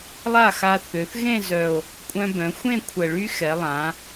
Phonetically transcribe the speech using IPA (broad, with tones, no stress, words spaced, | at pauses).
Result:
lˠa˥˩xa˧θø˩˧θ ɣẽ˥˧zœ˨˩o̯ | kʷʼœ̃˧bœ̃˩˧xʷẽ˥˧ kʷʰə˨˩ɭy˦˥xɛ˩˧ lˠã˩˧